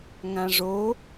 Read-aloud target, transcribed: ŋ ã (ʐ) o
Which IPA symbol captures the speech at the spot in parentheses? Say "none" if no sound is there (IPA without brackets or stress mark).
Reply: ʐ